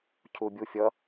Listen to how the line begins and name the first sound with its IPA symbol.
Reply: cʰ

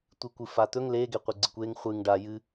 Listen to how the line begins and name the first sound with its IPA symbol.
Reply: tʷ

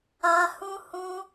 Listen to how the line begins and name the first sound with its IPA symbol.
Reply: a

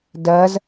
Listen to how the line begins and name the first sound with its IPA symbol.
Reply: d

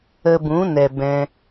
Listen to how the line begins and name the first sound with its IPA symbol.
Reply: ə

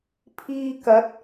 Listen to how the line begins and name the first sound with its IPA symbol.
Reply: pʰ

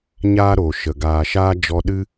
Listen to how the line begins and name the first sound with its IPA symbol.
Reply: ɲ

